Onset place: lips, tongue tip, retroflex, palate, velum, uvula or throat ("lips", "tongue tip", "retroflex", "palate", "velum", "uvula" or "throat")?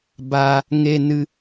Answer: lips